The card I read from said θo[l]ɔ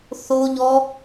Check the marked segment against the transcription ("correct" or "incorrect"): incorrect